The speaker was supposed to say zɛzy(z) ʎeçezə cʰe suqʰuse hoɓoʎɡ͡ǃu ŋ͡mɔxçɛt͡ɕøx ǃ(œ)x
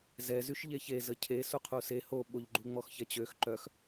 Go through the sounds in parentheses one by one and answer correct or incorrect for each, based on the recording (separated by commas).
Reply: incorrect, correct